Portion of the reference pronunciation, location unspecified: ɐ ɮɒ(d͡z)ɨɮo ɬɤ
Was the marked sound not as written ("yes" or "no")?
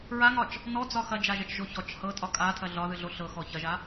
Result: yes